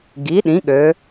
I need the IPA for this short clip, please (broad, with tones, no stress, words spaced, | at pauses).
ɡi˩˥ɗĩ˩˥ɠø˩˧